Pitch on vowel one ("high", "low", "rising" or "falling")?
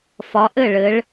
rising